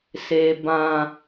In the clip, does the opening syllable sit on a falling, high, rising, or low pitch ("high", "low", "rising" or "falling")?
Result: low